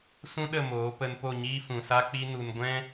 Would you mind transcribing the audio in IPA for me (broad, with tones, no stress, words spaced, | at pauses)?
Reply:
sũ˦ɗə˦˨moː˨˦ pə˧n po˦˨ɲiː˦fũ˨sa˦ k͡pi˦nu˧n ɡʷɛ̃˦